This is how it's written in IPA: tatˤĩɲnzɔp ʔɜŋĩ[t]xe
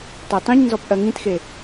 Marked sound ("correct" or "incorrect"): correct